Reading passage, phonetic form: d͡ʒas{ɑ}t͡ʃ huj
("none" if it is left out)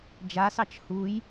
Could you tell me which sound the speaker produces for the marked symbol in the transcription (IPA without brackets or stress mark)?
ɑ